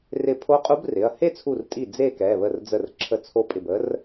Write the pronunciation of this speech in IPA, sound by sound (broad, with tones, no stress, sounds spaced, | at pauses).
r ɪ˧˩ pʰ o˧˥ qʼ u˧˥ b r ɪ˩˧˩ ɐ̯ h e˥˧ t͡sʰ u˧˩ r tʼ i˧˩ d͡z e˥˧ k ɛ˩˧˩ β ə˧˩ r d͡z ə˧˩ r ǁʰ ə˧˩ t͡sʰ o˧˥ pʼ ɪ˧˩ b ə˧˥ r